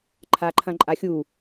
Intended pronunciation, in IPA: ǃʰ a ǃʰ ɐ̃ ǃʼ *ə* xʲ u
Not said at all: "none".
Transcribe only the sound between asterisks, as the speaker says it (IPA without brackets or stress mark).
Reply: a